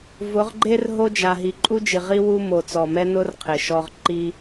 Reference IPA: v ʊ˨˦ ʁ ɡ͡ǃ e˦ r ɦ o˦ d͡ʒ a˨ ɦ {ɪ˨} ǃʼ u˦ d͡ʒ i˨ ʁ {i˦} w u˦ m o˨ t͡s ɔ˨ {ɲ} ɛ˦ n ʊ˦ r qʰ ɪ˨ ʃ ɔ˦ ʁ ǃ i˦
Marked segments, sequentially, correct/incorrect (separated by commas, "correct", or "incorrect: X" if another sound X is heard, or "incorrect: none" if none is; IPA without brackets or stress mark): incorrect: i˨, correct, incorrect: m